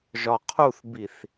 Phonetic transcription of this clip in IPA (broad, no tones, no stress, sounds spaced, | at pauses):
ʒ ɒ qʰ u θ b i θ